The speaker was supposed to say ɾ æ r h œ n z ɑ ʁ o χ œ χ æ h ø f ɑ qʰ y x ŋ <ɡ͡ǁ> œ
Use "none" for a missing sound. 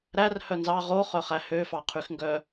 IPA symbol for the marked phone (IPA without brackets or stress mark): ɡ